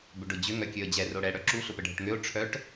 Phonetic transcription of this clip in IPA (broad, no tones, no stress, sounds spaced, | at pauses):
b ʏ ɖ ʊ d͡ʑ ʏ ŋ œ kʲ ø ə̯ d͡ʑ ɛ r o ɽ ɛ ɽ œ ǁ u ɬ ʊ p ə ɖʱ ə ʈ ŋ ø ʊ̯ ʈ͡ʂʰ œ ʈ